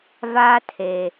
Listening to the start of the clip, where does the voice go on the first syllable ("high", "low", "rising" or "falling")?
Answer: high